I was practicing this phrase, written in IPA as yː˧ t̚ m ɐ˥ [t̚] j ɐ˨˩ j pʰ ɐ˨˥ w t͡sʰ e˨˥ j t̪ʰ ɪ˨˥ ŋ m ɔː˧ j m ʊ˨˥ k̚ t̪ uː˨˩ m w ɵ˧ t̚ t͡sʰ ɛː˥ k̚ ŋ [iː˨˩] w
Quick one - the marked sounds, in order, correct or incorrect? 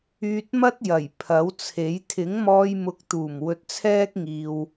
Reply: correct, incorrect: iː˨

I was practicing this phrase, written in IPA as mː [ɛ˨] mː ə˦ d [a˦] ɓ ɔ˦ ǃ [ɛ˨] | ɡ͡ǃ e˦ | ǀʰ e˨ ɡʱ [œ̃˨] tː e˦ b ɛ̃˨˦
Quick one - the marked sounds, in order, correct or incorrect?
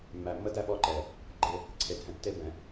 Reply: incorrect: æ˨, incorrect: æ˦, correct, incorrect: ɛ̃˨

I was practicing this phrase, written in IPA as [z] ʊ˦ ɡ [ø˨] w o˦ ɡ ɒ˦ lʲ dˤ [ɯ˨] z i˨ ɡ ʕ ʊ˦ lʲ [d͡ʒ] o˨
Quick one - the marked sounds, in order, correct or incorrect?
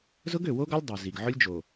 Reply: correct, correct, incorrect: u˨, correct

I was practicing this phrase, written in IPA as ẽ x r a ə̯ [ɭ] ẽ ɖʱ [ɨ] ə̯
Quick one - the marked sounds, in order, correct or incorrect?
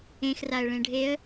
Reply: correct, incorrect: e

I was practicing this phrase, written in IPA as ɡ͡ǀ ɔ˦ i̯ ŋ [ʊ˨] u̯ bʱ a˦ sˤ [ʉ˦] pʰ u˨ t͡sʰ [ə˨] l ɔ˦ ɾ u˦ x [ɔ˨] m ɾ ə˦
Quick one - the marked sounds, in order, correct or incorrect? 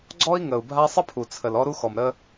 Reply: incorrect: ə˨, incorrect: ə˦, correct, correct

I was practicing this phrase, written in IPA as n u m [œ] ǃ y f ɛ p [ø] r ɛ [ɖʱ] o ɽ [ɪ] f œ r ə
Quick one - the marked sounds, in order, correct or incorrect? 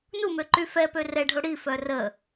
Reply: incorrect: ø, correct, correct, incorrect: i

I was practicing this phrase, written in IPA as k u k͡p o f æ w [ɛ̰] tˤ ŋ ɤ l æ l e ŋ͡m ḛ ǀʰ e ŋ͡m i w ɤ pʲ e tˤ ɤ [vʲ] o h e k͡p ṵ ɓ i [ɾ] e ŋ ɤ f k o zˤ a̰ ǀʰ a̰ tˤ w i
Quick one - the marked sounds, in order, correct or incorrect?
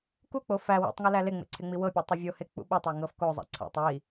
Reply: incorrect: ḛ, correct, incorrect: tˤ

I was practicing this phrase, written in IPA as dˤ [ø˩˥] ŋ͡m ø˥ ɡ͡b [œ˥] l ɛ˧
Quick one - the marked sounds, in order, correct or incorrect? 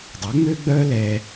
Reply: correct, correct

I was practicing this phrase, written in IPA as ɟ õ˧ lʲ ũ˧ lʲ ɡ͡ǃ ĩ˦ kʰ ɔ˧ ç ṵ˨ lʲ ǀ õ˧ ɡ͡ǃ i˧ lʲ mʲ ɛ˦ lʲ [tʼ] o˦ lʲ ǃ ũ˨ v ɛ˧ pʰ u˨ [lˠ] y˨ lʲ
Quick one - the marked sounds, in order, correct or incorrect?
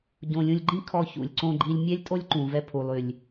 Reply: correct, correct

